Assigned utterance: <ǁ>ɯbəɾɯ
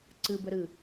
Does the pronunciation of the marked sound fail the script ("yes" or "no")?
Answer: yes